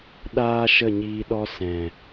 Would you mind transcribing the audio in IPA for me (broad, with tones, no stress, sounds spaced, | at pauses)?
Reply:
ɗ aː˦ ʃ ə˦˨ ɲ iː˧ ɗ ɔ˦ s ɛ̃˨